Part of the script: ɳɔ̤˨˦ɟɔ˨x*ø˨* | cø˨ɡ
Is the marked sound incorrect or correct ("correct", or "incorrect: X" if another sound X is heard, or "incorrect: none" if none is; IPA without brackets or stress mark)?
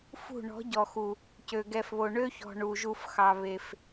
incorrect: u˨